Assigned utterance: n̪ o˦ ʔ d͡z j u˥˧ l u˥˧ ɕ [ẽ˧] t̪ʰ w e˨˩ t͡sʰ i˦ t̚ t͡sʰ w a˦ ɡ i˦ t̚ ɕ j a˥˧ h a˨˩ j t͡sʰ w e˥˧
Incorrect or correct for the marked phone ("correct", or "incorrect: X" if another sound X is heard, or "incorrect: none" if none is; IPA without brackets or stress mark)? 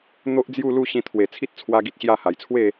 incorrect: ĩ˧